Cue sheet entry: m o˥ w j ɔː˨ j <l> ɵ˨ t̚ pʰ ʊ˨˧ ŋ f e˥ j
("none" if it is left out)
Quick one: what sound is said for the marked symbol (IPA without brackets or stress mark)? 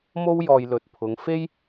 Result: l